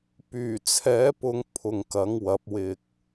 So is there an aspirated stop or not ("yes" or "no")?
yes